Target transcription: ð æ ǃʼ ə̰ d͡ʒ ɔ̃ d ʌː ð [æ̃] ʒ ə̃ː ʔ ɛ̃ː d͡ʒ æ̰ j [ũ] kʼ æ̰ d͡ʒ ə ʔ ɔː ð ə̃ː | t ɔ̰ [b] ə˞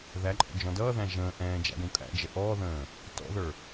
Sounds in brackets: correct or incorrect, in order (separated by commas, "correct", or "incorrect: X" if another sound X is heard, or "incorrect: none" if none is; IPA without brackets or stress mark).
correct, correct, incorrect: ð